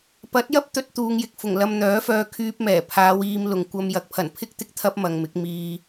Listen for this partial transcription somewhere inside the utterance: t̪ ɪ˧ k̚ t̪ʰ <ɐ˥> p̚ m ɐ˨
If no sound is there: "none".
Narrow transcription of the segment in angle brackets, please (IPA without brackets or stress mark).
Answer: ɐ˥